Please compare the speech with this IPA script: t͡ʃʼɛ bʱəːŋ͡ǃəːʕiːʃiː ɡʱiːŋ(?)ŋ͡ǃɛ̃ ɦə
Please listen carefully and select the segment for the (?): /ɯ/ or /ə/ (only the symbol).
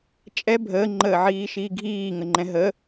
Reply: ə